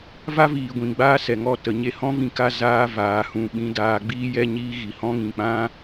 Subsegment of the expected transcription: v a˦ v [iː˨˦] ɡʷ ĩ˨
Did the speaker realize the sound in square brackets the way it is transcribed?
no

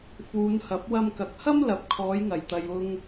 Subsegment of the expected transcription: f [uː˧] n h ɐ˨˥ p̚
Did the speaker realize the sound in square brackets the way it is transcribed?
no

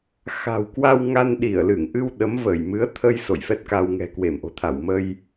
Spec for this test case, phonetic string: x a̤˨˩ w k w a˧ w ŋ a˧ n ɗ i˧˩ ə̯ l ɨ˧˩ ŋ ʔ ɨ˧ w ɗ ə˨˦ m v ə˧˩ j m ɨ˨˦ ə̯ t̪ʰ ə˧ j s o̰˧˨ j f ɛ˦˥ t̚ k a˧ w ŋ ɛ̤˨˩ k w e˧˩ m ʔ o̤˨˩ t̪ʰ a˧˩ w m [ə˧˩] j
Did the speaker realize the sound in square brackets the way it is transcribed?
no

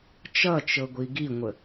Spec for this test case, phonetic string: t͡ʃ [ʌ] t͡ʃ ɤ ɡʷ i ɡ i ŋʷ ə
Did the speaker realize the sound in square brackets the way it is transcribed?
yes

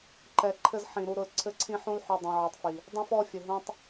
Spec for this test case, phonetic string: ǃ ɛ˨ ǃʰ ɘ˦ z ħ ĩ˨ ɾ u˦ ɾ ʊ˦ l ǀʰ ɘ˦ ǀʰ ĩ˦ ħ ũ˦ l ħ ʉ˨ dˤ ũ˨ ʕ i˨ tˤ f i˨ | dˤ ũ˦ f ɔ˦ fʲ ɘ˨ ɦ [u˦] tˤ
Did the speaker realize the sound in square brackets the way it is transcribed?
no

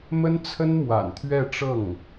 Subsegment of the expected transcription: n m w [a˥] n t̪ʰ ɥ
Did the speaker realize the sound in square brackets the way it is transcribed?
no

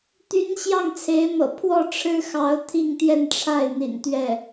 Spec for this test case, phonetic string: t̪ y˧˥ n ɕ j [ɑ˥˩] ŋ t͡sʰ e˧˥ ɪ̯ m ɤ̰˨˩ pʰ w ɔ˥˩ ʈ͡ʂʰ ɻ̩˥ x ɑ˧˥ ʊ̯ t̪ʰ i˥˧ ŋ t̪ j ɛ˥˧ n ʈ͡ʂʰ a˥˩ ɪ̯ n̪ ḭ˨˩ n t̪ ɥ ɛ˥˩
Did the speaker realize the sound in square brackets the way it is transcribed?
yes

